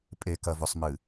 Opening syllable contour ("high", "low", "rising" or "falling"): low